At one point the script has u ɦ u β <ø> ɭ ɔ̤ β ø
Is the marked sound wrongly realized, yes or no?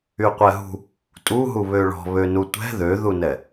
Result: no